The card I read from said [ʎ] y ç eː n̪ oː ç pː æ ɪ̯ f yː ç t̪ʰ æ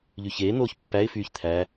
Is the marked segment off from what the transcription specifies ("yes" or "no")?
no